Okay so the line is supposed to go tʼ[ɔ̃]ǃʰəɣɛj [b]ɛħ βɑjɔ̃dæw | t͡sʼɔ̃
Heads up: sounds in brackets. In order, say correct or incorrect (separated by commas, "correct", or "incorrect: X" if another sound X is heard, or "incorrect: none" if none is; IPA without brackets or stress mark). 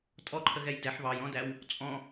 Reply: incorrect: ɔ, incorrect: d